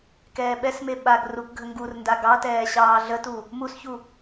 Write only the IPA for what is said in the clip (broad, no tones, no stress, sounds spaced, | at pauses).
k ɛː ɓ ɛ s m e ɓ a ɡ r u k ɡʱ ə ŋ ɡ u r n d a ɡ ɑ t ɛː ɕ ɑː ɮ ə t u | m u s ç u